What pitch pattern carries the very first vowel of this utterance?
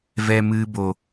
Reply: low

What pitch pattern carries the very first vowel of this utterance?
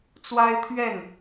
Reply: high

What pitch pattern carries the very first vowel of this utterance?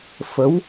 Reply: rising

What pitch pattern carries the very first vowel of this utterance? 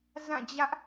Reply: falling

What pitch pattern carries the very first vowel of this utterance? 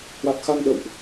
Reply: low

